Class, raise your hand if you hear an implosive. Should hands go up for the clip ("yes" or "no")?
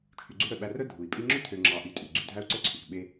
yes